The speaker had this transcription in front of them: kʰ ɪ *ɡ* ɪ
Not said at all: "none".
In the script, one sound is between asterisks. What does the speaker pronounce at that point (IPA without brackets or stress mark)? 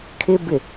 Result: b